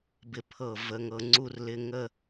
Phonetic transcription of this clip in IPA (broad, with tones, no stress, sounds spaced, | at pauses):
b ɪ˧ pʰ ɤ˧˩ v ə˧ ŋ ɤ˧ ŋ͡ǀ u˥ r l ɪ˧ ŋ ə˥˧